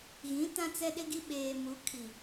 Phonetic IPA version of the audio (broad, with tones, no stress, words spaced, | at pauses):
ɣĩ˨˦ tã˦t͡sɛ˦ɗɪ˦ɡi˦ ɓeː˨mu˨˦ kʰi˨